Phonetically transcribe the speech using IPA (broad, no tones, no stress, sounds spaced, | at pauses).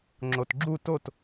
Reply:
ŋ͡ǁ o t ɡ͡ǁ u t o t